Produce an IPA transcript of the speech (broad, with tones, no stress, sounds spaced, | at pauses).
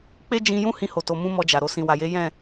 k͡p e˦ d͡ʒ ĩ˧ j ũ˦ h ĩ˧ h o˨ t o˨ m ũ˧ m ɔ˧ d͡ʒ a˨ ɾ o˨ s ĩ˨ w a˨ j e˨˦ j ɛ̃˦˨